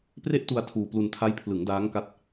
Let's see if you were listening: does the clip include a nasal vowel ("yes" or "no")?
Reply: no